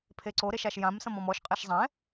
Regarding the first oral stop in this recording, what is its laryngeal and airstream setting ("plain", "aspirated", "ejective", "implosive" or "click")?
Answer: aspirated